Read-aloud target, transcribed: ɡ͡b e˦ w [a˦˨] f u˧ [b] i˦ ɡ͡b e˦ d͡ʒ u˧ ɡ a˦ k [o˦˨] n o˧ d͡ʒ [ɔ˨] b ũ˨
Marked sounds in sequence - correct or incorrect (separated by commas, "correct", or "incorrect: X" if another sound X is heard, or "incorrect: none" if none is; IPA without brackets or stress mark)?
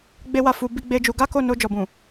correct, correct, correct, correct